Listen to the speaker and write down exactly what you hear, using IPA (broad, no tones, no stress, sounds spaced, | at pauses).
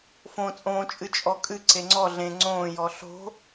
f õ t͡sʼ õː t͡ʃʼ ɨ t͡ʃʼ ɔ kʼ ɨ ǀ e ŋ͡ǀ ɔ ɮ ẽ ŋ͡ǀ õː j ɔ ɬ o̤